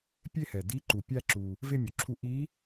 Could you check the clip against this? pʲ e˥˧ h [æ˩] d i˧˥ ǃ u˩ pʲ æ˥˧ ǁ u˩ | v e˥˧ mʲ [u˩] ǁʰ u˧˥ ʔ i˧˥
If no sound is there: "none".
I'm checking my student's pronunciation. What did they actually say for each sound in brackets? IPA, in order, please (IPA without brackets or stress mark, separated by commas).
ɛ˩, u˩